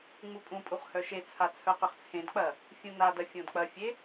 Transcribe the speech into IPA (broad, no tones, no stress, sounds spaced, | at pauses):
ŋ͡m u pʼ ũ pʼ u χ h œ ʃ e t͡sʰ a t͡sʰ œ q ʏ χ t͡sʰ ẽ d k͡p ɐ | fʲ ũ n a d ɐ fʲ õ d k͡p ɐ fʲ e